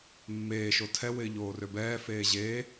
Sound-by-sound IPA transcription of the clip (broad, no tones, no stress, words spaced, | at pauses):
mːeː ʃotʰɛ wɪːʎoːrøbɛː feːʑeː